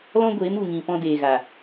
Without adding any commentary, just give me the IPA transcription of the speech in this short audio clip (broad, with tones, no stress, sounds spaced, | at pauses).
l ɔ̃˦ ɡʷ eː˨˦ m u˨ ŋ ĩ˨ p ɔ̃˧ d eː˨ ɣ a˨